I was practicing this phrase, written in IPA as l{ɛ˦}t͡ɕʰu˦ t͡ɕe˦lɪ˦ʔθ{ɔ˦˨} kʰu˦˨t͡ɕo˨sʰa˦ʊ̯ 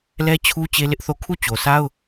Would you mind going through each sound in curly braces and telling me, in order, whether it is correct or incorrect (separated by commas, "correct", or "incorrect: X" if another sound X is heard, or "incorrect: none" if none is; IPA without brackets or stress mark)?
correct, incorrect: o˦˨